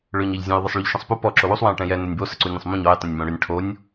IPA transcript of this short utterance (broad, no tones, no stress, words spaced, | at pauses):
ɭøɲɛʎzʲə̃j ðˤɪsˤɭyʎʃə̃sˤpu pɔ ǁowusˤ wɛ̃jʈɛ̃jɛ nɪnʲbo səǀunʲɔ̃sˤmũɲ ɔj tˤə̃nʲmõɽʏnʲ ʈʰonʲ